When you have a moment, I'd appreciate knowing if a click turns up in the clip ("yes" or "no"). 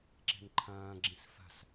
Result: yes